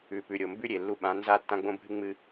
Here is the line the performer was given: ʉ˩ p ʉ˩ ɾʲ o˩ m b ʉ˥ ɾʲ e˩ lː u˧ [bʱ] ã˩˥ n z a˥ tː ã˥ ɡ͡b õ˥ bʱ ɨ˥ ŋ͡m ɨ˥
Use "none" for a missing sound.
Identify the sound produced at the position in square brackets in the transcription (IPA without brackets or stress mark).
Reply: ɓ